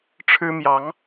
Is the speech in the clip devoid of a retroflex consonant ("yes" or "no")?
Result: no